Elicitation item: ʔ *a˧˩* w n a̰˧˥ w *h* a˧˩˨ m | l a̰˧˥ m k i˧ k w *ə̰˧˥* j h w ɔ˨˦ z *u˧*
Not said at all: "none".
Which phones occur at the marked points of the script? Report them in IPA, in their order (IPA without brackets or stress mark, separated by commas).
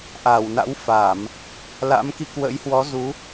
a˧˩, f, ə̰˧˥, u˨˦